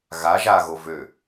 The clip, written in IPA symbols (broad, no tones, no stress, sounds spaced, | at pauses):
ɣ a ʒ a ɣ o v ø